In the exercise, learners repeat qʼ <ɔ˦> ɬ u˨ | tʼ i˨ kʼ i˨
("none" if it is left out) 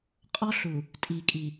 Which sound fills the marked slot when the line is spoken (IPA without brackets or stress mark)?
ɔ˦